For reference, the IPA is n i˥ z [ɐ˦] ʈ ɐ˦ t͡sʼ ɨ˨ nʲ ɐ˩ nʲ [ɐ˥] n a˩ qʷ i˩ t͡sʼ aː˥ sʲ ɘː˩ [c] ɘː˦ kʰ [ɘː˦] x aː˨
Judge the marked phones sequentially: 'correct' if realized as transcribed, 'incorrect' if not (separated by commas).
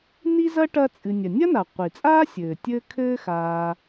incorrect, correct, incorrect, correct